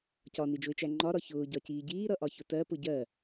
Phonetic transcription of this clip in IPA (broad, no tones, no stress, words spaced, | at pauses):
cɒnid͡ʒʊɪ̯t͡ʃæ ŋ͡ǃɒɾɒ çʊːɟɒciː ɟiːɾʌʔɒçʊ tɜpʊ ɟɜ